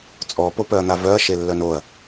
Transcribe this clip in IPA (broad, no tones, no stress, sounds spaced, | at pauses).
t͡sʼ ɔ p o p œ ɐ̯ n̪ a v œ ɐ̯ ʃ e lː œ n o ɐ̯